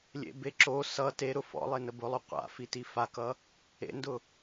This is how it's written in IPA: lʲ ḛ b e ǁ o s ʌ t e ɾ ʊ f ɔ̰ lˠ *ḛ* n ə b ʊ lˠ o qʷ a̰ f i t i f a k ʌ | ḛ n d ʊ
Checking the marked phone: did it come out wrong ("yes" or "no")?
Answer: yes